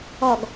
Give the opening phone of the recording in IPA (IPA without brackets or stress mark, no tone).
ɔ